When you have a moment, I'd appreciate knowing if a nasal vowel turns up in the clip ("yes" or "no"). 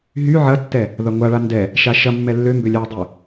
no